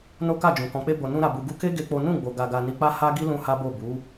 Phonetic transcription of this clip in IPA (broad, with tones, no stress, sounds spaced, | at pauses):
n o˦ k a˦˨ d͡ʒ ũ˨ k ɔ̃˨ k͡p e˧ b o˨ n ũ˧ ɾ a˨ b u˨ ɡ u˧ k e˦ ɡ e˦ k͡p o˦ n ũ˦˨ ɡ͡b o˨ ɡ a˨ ɡ a˨ n i˧ k͡p a˦ h a˦ ɡ i˦ l ũ˦ h a˦ b o˦˨ b u˨˦